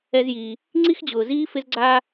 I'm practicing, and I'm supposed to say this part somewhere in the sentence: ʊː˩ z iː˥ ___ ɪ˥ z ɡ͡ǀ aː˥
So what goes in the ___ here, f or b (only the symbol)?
f